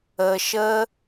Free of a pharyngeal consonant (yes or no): yes